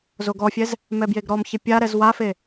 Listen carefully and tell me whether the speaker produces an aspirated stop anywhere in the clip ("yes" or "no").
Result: no